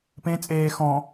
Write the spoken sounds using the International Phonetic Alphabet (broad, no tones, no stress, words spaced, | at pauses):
pẽ t͡sʼeː xɔ̃